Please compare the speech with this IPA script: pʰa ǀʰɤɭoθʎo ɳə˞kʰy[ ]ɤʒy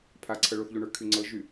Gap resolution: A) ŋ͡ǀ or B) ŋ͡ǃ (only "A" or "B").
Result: A